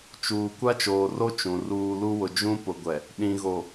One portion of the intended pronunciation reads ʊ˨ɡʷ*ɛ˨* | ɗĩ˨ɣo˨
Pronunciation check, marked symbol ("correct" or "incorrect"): correct